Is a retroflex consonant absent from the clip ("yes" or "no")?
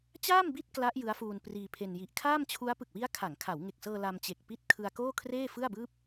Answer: yes